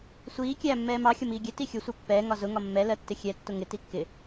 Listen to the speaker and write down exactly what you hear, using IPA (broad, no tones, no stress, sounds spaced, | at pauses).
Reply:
sʷ iː kʲ æː mː ɛː m ɑ xʲ ʌ m iː ɡʲ ɛ t i xʲ ʊ sʷ ɛ pː ɛː ŋ ɒ z ʊ ŋ ɒ mː ɛ l ɜ tː ɪ xʲ ɛ tː ʊ ŋ ɪ t i kː ɪ